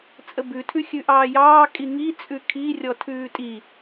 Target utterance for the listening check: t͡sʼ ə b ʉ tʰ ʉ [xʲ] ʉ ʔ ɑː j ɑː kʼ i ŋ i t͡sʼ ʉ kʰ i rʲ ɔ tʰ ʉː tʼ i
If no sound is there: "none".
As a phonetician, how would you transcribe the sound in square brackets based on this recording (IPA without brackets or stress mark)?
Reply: xʲ